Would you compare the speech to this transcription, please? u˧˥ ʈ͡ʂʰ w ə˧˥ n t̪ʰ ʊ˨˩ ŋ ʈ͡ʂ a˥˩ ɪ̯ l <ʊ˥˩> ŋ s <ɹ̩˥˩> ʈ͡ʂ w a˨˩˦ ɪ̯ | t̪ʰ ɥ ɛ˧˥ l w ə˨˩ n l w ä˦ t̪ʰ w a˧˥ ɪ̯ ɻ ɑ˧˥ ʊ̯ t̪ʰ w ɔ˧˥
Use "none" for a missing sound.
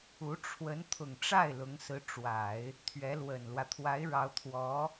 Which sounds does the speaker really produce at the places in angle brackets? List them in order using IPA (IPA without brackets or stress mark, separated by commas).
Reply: ʊ˧˥, ɹ̩˧˥